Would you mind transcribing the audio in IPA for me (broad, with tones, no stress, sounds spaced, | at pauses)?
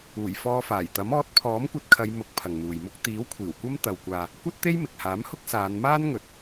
uː˨˩ j f ɔː˧ f aː˨˩ j t̪ ɐ˨˥ m ɔː˨˥ t̚ pʰ ɔː˨˥ m kʷ ɐ˧ t̚ kʰ ɐ˨˧ j m ʊ˨˥ k̚ pʰ ɐ˨ ŋ n̪ uː˨ j m ʊ˥ k̚ t̪ iː˨˥ w kʷʰ iː˨˩ w kʷ ɐ˥ m t̪ ɐ˧ w kʷ aː˧ | kʷ ɐ˥ t̚ t̪ e˥ j m ɪ˨ k̚ h aː˨˥ m h ʊ˥ k̚ s aː˨˧ n m aː˥ n ŋ ɵ˨ t̚